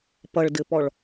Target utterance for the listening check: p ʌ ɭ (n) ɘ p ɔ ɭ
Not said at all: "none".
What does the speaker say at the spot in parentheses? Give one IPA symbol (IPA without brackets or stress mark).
d